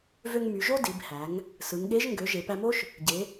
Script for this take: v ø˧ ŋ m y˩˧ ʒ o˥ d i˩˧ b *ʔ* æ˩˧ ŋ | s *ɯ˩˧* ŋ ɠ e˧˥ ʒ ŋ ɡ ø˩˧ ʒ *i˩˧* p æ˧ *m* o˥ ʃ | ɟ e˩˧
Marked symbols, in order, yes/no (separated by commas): no, yes, no, yes